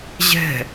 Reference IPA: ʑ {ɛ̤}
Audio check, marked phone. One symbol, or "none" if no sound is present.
ɛ̤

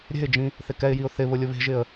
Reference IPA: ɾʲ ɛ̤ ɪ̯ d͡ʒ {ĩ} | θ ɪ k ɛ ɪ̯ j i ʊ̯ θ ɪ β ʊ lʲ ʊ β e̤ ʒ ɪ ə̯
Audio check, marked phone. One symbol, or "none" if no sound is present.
ĩ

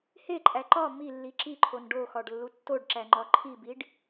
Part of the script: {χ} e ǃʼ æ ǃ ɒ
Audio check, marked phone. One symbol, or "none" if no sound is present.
h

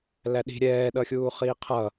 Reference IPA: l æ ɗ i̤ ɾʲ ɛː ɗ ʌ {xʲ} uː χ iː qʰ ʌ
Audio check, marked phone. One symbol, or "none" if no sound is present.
xʲ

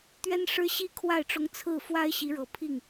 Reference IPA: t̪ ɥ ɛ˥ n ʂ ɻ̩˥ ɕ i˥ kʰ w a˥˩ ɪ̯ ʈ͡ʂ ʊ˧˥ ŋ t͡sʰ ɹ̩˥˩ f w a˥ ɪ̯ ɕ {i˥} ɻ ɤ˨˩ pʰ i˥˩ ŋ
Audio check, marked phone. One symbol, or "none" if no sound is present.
i˧˥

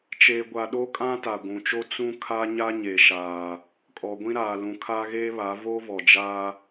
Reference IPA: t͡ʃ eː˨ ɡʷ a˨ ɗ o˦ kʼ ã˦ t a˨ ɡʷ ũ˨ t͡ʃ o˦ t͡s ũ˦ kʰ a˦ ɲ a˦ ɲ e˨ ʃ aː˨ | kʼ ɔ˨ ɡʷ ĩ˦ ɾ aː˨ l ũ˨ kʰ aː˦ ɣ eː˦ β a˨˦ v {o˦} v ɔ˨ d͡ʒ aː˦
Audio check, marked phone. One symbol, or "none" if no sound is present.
o˦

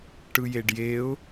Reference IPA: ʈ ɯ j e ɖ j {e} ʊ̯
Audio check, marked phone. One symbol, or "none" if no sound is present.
e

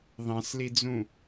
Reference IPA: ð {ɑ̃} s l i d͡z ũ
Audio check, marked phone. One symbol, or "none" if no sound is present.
ɑ̃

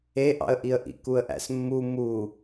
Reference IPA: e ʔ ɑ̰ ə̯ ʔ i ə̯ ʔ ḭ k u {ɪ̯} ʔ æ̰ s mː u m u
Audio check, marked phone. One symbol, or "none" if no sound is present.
ə̯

